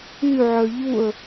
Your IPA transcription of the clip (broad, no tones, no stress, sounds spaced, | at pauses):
y ʕ œ ʎ u ə̯